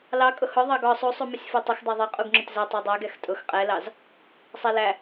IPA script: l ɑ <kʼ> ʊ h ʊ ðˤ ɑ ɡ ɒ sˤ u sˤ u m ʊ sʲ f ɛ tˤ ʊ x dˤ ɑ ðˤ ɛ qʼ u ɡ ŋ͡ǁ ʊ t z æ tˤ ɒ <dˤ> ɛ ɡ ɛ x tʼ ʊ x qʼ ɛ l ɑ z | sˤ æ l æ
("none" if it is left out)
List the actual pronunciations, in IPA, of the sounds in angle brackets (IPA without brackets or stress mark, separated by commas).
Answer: kʼ, dˤ